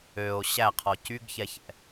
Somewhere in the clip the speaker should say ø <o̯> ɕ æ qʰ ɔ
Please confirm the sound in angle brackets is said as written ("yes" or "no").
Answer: yes